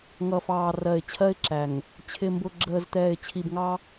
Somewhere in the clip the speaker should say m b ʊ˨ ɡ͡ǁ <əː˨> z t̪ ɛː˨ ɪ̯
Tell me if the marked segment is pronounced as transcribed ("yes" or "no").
yes